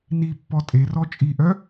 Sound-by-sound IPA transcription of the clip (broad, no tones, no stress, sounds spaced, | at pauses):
n i pː ɔ tʼ e r ɔ t͡ʃʼ i ʔ œ